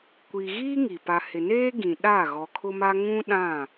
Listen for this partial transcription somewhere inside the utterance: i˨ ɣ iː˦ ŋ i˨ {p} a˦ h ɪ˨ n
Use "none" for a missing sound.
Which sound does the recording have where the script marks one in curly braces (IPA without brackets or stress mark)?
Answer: p